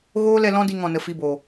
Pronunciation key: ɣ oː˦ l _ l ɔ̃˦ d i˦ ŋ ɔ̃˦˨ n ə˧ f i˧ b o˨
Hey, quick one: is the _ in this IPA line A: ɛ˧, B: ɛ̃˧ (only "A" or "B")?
A